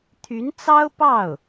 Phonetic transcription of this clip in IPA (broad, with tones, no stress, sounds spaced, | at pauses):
t̪ʰ y˧˥ n t͡s ɑ˥ ʊ̯ p ɑ˥˩ ʊ̯